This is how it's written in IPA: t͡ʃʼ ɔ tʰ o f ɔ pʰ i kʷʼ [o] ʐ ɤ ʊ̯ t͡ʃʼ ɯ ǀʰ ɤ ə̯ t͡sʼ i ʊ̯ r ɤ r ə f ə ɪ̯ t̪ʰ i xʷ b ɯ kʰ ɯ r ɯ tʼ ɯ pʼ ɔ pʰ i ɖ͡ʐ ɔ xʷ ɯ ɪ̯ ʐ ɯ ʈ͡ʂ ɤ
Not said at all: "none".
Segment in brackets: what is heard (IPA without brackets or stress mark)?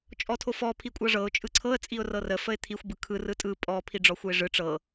ɤ